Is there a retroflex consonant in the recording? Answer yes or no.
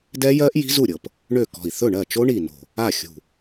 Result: yes